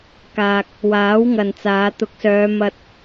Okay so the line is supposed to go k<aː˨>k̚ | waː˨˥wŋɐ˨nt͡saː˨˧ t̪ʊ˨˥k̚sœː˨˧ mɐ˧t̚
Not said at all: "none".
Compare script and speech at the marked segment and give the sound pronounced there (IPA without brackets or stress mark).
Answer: aː˨